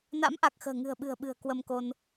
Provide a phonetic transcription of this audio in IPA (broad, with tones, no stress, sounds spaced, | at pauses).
n a̰˧˥ m ʔ a˨˩ k̚ x ə̤ː˨˩ ŋ ɨ̤˨˩ ə̯ ɓ ɨ̤˨˩ ə̯ ɓ ɨ̤˨˩ ə̯ k w ə˧ m k o˧ n